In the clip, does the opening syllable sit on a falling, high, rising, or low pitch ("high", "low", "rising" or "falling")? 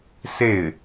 falling